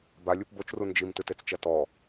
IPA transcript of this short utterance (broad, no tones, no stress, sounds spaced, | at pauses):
b a lʲ u p b o t͡ʃ r u n d͡ʒ i m t ɨ t e t͡s t͡ʃ ɐ t ɔ